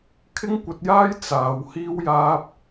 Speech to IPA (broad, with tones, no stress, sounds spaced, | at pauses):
kʰ ɪ˥ ŋ kʷ ɐ˧ t̚ j aː˥ j t͡s aː˨˧ w h iː˥ w j aː˥ p̚